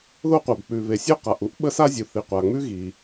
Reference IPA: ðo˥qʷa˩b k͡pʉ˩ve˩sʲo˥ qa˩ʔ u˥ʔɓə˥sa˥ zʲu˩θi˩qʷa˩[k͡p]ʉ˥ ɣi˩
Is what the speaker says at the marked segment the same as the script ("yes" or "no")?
no